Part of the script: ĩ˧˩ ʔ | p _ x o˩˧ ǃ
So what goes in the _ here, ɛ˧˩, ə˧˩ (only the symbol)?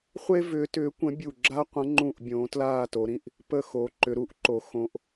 ə˧˩